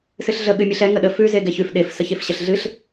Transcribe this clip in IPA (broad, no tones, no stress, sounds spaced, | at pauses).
s ɨ ɬ ɮ ə ɠ ɨ mʲ ɨ ɬ ɛ ŋ ə ɗ ə f ʉ z e ɡ ɛ ç ʉ f ɗ e f s ə ç e f ɕ ə ɬ ɮ ɨ ɬ